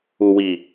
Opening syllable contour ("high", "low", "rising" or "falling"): low